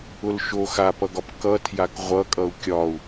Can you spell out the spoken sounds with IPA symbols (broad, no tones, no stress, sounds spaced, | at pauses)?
ʊ l ʃ o x a p ʌ ɡ ɒ p k ʌ tʰ j a k ʁʷ ʌ kʼ ʌ u̯ kʲ ɒ u̯